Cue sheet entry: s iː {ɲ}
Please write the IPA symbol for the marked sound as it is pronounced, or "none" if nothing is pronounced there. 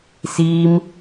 m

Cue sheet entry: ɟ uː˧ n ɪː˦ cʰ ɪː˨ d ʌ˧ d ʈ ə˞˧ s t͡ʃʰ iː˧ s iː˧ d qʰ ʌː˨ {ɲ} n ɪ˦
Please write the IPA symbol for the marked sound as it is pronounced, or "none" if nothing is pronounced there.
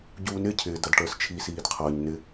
ɲ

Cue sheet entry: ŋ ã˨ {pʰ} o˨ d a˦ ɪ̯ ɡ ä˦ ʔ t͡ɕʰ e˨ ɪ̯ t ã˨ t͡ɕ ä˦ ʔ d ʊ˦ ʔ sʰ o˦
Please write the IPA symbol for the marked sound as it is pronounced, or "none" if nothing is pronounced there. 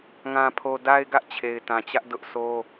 pʰ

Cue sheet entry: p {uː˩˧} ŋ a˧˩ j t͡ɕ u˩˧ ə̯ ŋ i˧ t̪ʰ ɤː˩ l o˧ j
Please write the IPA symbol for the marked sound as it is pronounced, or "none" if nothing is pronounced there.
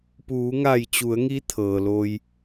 uː˩˧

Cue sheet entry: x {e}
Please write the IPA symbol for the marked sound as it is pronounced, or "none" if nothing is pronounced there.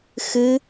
ɨ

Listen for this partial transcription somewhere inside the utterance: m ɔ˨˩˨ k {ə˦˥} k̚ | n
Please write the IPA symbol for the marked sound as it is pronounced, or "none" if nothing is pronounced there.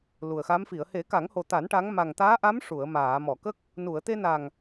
ə˦˥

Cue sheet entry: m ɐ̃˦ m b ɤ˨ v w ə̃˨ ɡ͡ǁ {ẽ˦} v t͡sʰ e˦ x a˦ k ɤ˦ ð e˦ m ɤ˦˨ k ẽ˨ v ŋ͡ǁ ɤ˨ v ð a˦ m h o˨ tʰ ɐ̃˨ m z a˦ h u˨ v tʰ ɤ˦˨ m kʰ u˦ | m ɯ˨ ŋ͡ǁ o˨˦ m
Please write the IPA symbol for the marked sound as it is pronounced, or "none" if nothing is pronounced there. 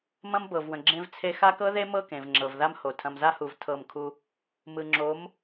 ẽ˦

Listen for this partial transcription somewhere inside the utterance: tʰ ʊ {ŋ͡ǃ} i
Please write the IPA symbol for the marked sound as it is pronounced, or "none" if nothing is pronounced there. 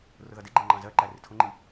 ŋ͡ǃ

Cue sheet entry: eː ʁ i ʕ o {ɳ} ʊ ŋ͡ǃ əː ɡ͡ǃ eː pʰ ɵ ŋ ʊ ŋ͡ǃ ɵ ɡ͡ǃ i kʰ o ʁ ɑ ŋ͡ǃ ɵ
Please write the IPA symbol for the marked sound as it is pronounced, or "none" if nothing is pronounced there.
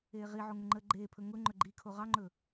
ŋ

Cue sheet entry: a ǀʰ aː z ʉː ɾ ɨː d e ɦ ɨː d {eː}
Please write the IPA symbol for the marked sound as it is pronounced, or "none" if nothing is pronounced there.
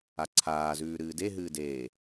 eː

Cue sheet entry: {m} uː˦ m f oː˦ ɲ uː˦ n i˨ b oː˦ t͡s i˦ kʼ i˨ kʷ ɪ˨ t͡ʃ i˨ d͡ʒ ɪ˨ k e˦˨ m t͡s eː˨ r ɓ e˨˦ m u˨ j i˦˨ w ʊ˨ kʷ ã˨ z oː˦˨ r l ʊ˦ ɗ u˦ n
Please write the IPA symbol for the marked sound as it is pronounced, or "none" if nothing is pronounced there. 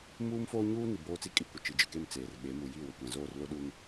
m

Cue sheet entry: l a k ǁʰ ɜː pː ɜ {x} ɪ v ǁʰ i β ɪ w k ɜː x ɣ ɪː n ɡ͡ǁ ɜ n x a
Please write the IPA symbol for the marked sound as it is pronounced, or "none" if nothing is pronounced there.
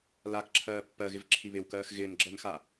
ɣ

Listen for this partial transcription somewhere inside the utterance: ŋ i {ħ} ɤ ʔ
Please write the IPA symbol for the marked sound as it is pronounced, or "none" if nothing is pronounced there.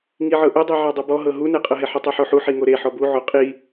ʕ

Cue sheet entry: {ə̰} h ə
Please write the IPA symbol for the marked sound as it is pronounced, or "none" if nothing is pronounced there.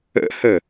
ə̰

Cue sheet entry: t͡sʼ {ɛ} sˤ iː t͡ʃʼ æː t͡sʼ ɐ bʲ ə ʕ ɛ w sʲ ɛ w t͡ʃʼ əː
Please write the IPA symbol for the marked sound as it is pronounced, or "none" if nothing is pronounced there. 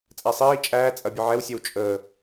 æ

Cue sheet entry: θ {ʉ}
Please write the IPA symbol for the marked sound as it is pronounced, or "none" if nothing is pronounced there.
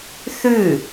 ʉ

